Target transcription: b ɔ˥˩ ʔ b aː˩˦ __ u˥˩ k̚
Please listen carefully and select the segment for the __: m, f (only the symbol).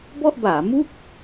m